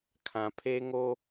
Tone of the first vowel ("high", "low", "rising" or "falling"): low